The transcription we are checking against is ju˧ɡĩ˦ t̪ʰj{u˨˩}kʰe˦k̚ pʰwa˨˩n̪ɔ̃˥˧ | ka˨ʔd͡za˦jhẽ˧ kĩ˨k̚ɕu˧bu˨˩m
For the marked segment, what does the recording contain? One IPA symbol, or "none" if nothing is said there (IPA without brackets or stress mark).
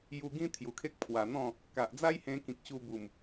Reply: u˨˩